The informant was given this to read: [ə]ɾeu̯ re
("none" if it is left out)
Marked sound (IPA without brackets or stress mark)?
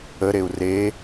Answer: ə